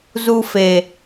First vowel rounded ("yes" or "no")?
yes